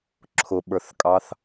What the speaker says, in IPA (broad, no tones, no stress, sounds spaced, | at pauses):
ǁʰ ʊ ɓ ə˞ θ kʼ ɑ θ